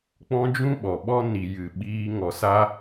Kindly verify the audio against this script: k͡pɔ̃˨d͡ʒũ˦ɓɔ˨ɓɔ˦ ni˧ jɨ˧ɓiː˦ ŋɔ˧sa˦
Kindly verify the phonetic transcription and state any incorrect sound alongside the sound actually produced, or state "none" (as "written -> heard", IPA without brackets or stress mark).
ɔ̃˨ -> ɔ̃˦